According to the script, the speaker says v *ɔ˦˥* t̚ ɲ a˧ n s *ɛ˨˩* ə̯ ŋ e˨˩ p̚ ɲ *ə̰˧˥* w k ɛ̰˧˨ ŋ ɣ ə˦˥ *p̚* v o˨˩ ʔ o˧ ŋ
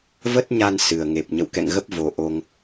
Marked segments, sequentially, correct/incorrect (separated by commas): incorrect, incorrect, incorrect, correct